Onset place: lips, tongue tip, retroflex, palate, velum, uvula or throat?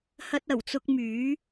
throat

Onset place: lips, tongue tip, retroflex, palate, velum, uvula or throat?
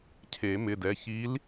palate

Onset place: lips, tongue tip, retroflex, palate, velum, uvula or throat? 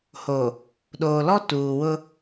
throat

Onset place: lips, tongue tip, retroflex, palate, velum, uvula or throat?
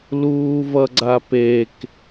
tongue tip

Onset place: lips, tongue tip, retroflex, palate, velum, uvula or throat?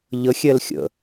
palate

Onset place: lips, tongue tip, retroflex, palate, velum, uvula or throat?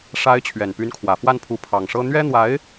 retroflex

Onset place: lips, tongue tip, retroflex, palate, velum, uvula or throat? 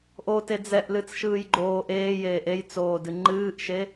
throat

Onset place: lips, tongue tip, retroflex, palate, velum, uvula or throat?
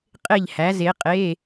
uvula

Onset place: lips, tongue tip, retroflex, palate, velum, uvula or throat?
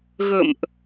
velum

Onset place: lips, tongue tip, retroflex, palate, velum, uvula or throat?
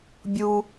lips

